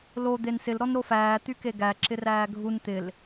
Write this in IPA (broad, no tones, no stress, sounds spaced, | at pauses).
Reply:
l o d̪ e n s ɪ l ɾ ɔ n ɾ o f æː t̪ y k e ɡ æ ǁ ɪ r æː ɡʱ u n t̪ ɪ l